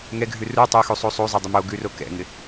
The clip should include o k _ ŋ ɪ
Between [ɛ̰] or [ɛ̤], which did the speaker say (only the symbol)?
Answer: ɛ̰